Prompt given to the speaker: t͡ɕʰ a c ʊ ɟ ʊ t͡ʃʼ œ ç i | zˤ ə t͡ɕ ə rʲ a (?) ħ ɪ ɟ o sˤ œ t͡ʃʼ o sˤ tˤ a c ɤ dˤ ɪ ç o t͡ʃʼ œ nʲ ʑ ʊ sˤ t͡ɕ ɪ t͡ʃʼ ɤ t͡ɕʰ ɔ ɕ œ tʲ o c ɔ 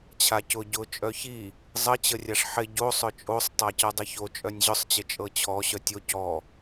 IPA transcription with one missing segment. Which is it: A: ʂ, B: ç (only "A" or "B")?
A